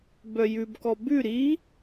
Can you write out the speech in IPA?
b œ j ʉ b k ɔ b ʉ ɾ i

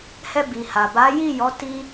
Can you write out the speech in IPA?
h ɛ˧ b i˨ h a˨ b a˨˦ j i˦˨ j ɔ˨˦ t i˧

